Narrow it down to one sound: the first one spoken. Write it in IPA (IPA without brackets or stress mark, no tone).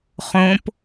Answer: χ